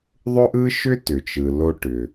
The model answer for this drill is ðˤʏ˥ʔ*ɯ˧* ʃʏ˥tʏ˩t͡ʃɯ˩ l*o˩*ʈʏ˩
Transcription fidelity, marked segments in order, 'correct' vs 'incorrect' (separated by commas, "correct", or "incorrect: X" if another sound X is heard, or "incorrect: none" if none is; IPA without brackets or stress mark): incorrect: ɯ˥, incorrect: o˧